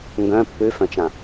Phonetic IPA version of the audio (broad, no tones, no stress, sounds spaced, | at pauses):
ŋ ɡ œ̃ pː ʉ f œ̃ t͡ʃ ã